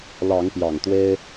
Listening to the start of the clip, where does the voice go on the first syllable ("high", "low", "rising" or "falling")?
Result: rising